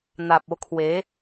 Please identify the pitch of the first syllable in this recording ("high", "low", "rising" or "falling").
low